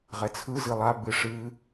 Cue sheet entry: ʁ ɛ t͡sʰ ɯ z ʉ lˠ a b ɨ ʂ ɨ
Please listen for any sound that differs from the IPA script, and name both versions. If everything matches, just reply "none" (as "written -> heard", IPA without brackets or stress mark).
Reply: ʉ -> ɨ